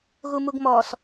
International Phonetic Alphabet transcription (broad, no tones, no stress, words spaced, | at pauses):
ɣumuɡmɔs